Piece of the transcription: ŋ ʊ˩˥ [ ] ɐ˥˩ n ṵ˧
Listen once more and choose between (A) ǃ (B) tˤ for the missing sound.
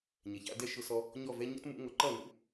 A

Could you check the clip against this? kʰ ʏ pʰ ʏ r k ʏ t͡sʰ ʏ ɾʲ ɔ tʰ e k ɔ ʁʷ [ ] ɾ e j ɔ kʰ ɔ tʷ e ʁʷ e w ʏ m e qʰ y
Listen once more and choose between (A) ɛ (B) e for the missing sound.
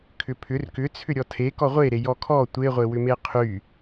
B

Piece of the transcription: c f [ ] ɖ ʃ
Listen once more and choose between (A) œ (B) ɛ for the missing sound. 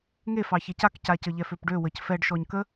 B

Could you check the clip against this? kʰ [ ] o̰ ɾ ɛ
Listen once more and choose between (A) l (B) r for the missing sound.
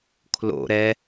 A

